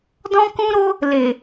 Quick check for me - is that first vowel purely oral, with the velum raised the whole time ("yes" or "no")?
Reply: no